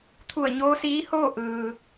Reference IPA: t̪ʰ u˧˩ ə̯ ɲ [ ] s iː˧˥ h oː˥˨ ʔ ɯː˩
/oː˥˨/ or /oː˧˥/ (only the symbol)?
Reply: oː˧˥